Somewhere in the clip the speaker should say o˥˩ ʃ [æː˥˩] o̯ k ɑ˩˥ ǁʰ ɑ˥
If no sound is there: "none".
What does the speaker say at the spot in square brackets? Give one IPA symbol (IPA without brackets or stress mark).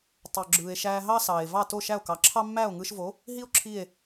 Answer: æ˥˩